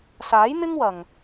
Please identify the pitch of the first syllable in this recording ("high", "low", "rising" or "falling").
rising